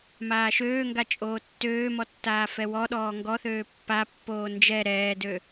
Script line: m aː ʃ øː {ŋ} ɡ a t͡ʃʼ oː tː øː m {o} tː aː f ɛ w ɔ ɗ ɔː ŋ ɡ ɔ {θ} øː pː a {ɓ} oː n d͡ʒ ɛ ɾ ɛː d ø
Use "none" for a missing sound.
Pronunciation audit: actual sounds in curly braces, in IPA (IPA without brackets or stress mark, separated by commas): ŋ, ɔ, θ, pː